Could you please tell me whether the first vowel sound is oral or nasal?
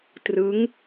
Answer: oral